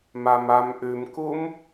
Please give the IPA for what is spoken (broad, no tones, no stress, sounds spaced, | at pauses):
m a m a m ʔ ʉ m k u m